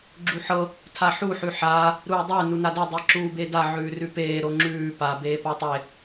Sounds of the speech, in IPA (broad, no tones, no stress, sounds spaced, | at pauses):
ɡ͡ǁ u ħ ɤ | tʰ a ħ u ħ ʉ ħ aː | ɾ uː dˤ ø n u n a d e dˤ i ǁ uː b e d a ʕ ʉː r ʉ p eː ɾ o ŋ͡ǁ ʉː p a b eː p a tˤ e